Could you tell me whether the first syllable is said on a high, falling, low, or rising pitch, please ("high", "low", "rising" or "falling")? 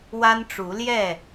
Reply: high